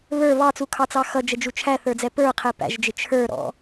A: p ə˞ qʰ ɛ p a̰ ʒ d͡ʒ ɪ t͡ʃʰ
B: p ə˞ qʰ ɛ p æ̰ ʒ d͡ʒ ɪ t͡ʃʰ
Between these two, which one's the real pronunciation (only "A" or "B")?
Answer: B